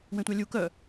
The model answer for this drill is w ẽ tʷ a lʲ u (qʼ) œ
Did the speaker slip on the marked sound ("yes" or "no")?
yes